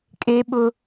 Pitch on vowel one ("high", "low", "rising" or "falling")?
high